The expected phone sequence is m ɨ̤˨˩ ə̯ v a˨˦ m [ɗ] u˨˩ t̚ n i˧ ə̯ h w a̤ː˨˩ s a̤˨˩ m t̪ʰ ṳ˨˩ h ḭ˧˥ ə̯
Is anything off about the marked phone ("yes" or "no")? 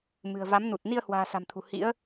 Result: yes